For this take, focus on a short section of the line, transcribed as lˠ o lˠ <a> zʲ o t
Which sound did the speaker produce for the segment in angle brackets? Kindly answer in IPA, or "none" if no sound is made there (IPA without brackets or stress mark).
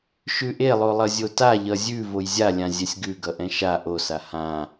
ʌ